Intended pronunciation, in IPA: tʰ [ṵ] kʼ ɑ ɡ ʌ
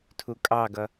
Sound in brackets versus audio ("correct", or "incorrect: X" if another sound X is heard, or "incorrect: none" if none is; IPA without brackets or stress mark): incorrect: u